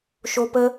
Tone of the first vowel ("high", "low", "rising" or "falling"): high